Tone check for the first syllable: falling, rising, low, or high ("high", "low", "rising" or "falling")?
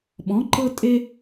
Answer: rising